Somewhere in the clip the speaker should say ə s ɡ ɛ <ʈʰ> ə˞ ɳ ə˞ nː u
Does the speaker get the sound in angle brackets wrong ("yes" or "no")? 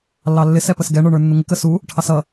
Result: yes